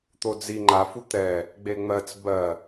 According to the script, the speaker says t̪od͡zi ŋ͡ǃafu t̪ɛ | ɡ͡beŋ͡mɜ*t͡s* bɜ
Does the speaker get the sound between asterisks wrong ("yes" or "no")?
no